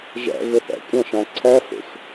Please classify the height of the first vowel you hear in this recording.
low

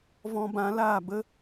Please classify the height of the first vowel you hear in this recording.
mid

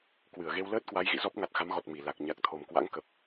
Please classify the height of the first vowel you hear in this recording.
high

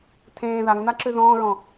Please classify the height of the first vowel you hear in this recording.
mid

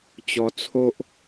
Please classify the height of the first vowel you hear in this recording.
mid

